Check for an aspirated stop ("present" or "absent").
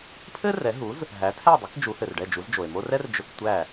present